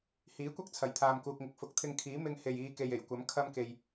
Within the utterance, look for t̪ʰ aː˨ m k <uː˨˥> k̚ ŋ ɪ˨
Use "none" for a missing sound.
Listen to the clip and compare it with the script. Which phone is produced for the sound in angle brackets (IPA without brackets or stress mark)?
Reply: uː˨